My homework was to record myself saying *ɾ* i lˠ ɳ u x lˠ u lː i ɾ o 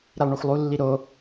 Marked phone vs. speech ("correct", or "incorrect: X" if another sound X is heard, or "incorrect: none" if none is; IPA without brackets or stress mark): correct